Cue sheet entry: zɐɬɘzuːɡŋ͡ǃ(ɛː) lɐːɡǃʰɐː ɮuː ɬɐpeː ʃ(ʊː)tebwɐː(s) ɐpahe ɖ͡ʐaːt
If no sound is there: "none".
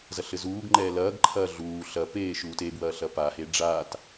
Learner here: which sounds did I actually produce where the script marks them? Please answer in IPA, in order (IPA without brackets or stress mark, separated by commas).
ɛː, uː, ɬ